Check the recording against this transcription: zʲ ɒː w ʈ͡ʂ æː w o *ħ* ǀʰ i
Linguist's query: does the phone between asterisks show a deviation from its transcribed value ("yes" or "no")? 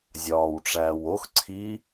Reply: yes